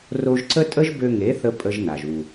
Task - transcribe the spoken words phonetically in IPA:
r o˧ ʒ ǀ ə˦ tʼ ə˦ ʒ b ø˧ ŋ e˨˦ θ ə˧ pʼ ə˦ ʒ n a˨ ʒ u˨

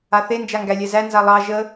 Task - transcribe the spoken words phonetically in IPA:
a θ e n d͡ʒ a ŋ ɡ æ lʲ ɛ z æ n z a lˠ ɑ ʒ ə

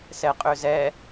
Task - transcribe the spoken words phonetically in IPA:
s ɛ qʼ ø z ɛ

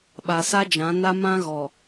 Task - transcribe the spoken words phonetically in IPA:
ɓ a˨ s a˦ d͡ʒ ã˨˦ n a˦ m ã˦ ɣ ɔ˨

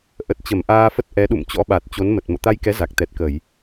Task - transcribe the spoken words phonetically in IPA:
ʔ ə˨˩ t̚ t͡ɕ ə˧˩ m ʔ aː˧ f ə˦˥ t̚ ʔ ɛ˨˦ ɗ ṵ˧˨ m t͡ɕ ɔ̰˧˥ ɓ a˨˩ t̚ t͡ɕ o˨˦ n m ə˨˩ t̚ m o̰˧˨ t̪ a˧ j k ɛ˨˦ z a˨˩ k̚ t̪ ɛ˨˩ t̚ k ə˧˩˨ j

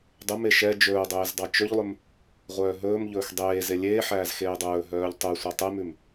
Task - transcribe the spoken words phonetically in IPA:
dˤ ɵ m e ʃ ɛ d͡ʒ ɵː dˤ eː z dˤ ɑ t͡ʃ ɵ ʎ lˠ ɵ m | ʁʷ œː ɦ ɵː m ʎ ɵː x dˤ eː z e lʲ eː ħ æː z x eː dˤ ɵː ɦ œː ʎ tˤ ʉ sʷ ɑ tˤ e m ʉ m

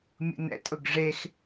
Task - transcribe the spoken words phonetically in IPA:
mʲ ṵ n ɛ̰ tʼ ʊ ɡ ʐ e x

